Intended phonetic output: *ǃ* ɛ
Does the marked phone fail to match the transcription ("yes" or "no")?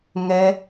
yes